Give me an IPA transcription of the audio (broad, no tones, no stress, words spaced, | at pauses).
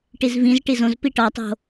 ʈizvĩz ʈizõz piʈɒtˤo̤